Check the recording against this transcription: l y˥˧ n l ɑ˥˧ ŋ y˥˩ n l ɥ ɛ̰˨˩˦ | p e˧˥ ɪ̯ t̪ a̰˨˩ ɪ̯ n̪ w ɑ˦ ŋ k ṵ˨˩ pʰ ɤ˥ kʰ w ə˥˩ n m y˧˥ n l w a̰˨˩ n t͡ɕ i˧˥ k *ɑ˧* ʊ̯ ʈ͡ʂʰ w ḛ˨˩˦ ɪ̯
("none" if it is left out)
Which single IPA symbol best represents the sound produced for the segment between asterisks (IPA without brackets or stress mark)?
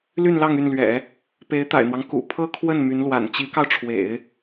ɑ˧